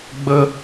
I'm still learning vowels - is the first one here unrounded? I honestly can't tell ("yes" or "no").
yes